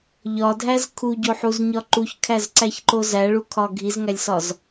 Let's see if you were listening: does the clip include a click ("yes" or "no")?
yes